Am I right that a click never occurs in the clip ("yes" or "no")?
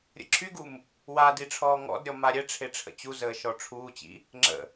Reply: no